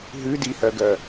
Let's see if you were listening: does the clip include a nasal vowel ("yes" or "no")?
no